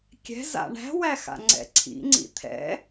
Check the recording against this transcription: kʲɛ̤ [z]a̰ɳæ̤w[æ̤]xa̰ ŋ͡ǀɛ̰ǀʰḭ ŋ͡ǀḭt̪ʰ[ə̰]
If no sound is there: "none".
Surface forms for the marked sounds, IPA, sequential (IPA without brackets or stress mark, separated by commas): z, æ, ɛ̰